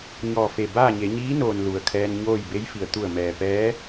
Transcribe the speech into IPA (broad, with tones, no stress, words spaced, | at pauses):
ɲɔː˧˩fe˧˩ baː˥˨ɲe˩˧ ɲiː˧˥noː˩n lu˩ə̯kʰɛː˧nɲoː˥˨j be˧˥jfi˩ə̯ t̪u˧˩ə̯mɛː˩pɛː˧˥